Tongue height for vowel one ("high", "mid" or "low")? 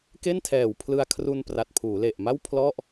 mid